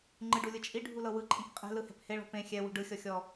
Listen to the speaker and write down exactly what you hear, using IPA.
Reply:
ŋ͡ǃ ɯ ɖ u lʲ ɯ t͡ʃʼ i ɖʱ u l ɤ w ɯ ǃʼ ĩ k qʼ ɛ̤ l ɯ h ɛ̤ p h e ɭ ɔ̤ p ẽ xʲ ɛ w ṳ ɖ ɯ xʲ ɔ xʲ ɔ

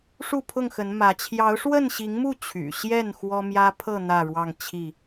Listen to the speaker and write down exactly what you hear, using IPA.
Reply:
ʂ u˥˨ pʰ ʊ˥˨ ŋ x ə˨˦ n m ä˨˦ t͡ɕʰ j ɑ˨˦ ʊ̯ ʂ w ə˥˨ n ɕ i˨˦ ŋ m u˥˨ t͡ɕʰ y̰˨˩ ɕ j ɛ˥˨ n x w ɔ˦ m j ä˦ pʰ ɤ˥˨ n̪ ä˥˨ ɻ w ɑ˥˨ ŋ t͡ɕʰ i˥˨

